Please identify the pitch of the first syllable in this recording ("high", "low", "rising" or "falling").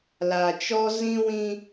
low